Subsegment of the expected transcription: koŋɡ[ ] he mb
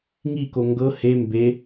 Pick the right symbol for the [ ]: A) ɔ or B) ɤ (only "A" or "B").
B